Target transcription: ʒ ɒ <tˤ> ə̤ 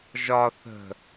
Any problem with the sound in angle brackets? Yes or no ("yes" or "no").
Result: yes